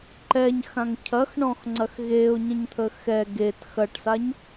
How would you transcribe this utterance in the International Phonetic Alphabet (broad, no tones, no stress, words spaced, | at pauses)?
ǃɛɲxãŋ cʰɐxɳɔ̃xŋ͡ǀɐx ɣeʊ̯ɲə̃ɲt̪ʰə xɛ ɡet xɐʈsaɲ